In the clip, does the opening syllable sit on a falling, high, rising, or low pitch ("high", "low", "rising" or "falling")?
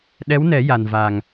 rising